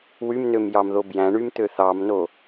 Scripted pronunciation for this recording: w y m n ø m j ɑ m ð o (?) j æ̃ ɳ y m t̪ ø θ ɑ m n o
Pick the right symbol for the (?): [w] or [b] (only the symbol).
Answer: b